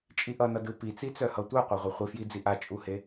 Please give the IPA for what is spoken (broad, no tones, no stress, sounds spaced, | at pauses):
t͡ʃʼ i ʔ ʌ n ʌ d ɯ p i t͡s i t͡s œ h ʌ tʷ œ qʷ a ʁʷ ʌ χʷ i f j i d͡z i ʔ a t͡ʃʼ u h e